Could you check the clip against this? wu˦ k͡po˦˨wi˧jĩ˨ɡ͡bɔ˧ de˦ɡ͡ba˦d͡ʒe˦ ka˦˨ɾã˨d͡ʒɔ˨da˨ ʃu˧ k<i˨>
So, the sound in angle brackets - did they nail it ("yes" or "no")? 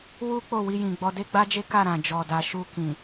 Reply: no